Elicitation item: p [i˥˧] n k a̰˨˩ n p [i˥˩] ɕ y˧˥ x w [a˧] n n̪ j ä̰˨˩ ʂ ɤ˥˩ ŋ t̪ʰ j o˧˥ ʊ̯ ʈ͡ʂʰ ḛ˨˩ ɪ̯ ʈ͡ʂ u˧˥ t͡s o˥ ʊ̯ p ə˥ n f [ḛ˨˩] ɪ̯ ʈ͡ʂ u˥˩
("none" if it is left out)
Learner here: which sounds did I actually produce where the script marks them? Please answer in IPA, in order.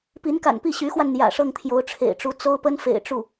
i˧˥, i˥˩, a˧, ḛ˨˩

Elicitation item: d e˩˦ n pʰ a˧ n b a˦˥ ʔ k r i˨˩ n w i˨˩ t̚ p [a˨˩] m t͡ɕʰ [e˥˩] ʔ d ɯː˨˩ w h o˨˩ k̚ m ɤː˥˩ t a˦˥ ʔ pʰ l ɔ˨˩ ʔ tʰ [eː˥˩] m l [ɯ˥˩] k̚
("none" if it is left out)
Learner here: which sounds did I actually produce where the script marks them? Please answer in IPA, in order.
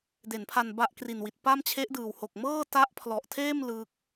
a˥˩, e˦˥, eː˥˩, ɯ˥˩

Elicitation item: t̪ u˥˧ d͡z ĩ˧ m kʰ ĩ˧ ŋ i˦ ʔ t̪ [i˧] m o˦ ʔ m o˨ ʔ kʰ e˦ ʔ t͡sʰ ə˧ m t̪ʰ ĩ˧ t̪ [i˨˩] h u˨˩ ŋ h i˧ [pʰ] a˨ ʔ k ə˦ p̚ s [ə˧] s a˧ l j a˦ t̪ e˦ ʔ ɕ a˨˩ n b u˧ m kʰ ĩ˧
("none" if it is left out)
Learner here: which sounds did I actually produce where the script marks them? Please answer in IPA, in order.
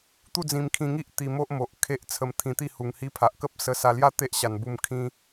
i˧, i˥˧, pʰ, ə˧

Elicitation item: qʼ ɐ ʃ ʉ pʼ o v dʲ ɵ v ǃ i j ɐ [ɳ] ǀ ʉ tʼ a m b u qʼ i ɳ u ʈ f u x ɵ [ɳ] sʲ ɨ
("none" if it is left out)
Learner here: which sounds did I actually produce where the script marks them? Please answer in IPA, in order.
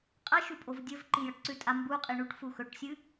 ʈ, ʈ

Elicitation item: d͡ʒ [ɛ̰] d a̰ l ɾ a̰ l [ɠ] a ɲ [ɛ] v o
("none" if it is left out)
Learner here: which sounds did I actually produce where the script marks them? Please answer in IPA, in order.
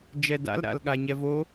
ɛ, ɠ, ɛ

